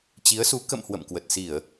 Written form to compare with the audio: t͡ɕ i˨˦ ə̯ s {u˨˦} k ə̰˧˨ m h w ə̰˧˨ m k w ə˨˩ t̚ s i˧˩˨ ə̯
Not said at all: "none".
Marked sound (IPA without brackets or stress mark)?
u˨˦